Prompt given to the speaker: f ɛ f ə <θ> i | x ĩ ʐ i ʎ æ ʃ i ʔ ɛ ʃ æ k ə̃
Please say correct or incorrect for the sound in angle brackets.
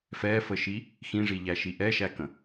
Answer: incorrect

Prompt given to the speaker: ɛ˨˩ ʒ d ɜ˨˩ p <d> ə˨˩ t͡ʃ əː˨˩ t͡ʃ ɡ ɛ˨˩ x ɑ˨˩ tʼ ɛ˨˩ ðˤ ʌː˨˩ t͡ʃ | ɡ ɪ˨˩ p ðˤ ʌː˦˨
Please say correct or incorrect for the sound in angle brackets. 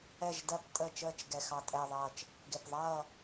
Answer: incorrect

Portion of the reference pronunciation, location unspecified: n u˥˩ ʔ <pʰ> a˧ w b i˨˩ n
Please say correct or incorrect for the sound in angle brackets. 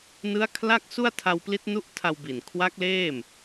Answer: incorrect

